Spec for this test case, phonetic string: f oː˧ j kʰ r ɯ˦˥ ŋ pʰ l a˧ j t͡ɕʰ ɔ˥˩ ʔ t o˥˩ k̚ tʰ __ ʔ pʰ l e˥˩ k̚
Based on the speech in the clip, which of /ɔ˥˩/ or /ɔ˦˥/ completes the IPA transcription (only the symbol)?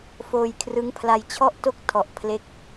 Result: ɔ˦˥